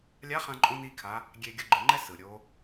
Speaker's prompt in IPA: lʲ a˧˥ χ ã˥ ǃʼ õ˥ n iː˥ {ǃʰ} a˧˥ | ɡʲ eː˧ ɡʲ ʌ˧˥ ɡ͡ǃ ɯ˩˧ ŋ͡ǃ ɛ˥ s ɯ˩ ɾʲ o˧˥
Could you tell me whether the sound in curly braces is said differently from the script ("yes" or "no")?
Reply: yes